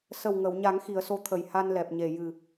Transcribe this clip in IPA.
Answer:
s ə˨˩ w ŋ ə˨˩˨ w ɲ a˨˩˦ ŋ x i˨˩˨ ə̯ s o˧˥ t̪ʰ ə˨˩ j h a˧ n l ɛ˨˩ p̚ ɲ e˨˩ j ɨ˨˩

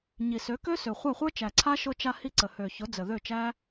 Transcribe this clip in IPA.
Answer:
ɲ i˨ s ø˨˦ k ø˦ s ø˨ χʷ a˦˨ χʷ ə˞˦ t͡ʃ æ˨ ǀʰ a˦ ʃ ʊ˧ t͡ʃ a˧ h i˧ ǀ ə˨ h ø˨ ç ʊ˨˦ d͡z ə˨ ð ø˦˨ t͡ʃ æ˦

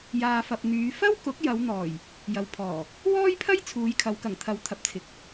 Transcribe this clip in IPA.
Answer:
j aː˨ f ɐ˨ p̚ n̪ yː˨˧ f ɐ˥ w k ʊ˨˥ k̚ j ɐ˨˧ w n̪ ɔː˨˩ j | j ɐ˨ w pʰ ɔː˨˩ | w ɔː˥ j pʰ ɐ˥ j t͡sʰ uː˨˧ j kʰ ɐ˨˧ w k ɐ˨˩ ŋ t̪ʰ ɐ˨˥ w t̪ʰ ɐ˨ p̚ t͡sʰ ɪ˨ k̚

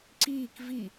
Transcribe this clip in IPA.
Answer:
ǀ iː k v i

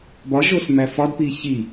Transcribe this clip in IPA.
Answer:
b ɒ ʒ o s m æ f ɒ d p i ç i

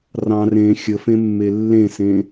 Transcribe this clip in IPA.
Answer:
r ɑ̃ r ẽ xʲ ə f ẽ mː e lː ẽ s ẽ

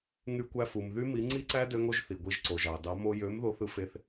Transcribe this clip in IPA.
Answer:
ŋ y˧ kʷ æ˧ f u˩ m ð y˦˥ m i˨˥ ŋ͡ǀ i˦˥ ǀ æ˦˥ d ø˦˥ ŋ o˦˥ ʒ θ i˩ ɡʷ i˨˥ ʒ ǀ o˩ ʒ ɑ˩ d ɑ˨˥ m o˧ j ø˨˥ m ð o˨˥ θ ɯ˧ f e˧ θ

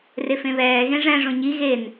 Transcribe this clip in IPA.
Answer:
r e f ẽ β ɛː ɣ ẽ ʐ ɛ̃ ʐ õ ɲ i ɣ e n

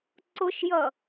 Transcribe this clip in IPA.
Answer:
ǀ ʊ ʃ j ʌ

